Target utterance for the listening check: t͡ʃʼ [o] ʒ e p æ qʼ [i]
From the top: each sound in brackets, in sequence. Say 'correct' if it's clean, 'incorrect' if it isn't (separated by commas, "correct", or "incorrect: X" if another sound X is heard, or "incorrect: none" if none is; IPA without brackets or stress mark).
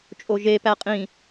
correct, incorrect: ĩ